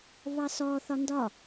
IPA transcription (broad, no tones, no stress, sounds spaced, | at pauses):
β ɑ s ɔ θ ɒ n d ɒ